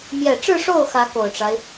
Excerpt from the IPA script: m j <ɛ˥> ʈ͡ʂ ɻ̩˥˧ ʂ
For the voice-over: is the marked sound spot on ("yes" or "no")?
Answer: no